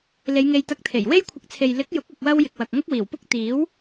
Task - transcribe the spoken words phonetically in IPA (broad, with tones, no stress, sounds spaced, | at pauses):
l e˨˧ j ŋ e˧ j t̪ ɐ˧ k̚ t̪ʰ e˨˩ j w e˥ j kʷʰ ɪ˧ k̚ t͡sʰ e˨ j l ɪ˨˥ k̚ j ʊ˨˥ k̚ ɐ˧ k̚ w ɐ˥ w j ɪ˨ k̚ w ɐ˨ k̚ ŋ ʊ˥ k̚ w iː˨˩ w p ʊ˥ k̚ t̪ iː˨˥ w